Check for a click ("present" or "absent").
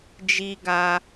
absent